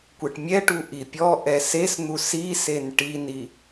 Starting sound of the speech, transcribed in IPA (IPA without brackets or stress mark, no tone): kʷ